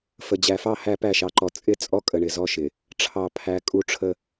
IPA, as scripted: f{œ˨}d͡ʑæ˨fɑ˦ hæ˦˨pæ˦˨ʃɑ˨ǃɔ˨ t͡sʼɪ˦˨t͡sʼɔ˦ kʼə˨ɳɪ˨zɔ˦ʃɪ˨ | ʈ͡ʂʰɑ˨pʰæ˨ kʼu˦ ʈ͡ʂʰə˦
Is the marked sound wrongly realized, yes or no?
yes